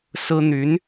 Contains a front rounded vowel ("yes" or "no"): yes